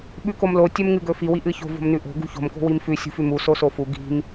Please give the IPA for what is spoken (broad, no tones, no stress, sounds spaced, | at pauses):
ɓ ʉ k o m l o tʲ ɵ m ŋ ɨ ɡ ɵ f i w i ʔ ɨ ç o̤ v o̤ m n ʉ ʔ o̤ ɡ ṳ ç o̤ m k o̤ w i m f ʉ sʲ ṳ f ʉ m u s o s o f u ɡ i̤ m